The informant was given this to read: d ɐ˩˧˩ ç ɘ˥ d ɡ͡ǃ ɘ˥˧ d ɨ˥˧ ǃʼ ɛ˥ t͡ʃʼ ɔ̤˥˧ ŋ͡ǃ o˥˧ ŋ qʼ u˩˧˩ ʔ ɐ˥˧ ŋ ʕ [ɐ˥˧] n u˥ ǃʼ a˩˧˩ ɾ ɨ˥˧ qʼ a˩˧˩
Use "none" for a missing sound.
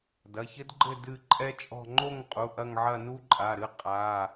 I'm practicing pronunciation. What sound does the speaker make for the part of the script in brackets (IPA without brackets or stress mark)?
ɐ˥˧